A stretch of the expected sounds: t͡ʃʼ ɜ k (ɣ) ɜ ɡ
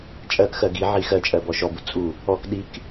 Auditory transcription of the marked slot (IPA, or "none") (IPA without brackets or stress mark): x